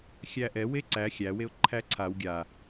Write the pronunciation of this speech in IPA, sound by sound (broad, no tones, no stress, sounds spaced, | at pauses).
xʲ æ ʔ ɛ w e ǀ æ xʲ æ w e ʊ̯ ǃʰ æ ǀʰ a w ɡʲ a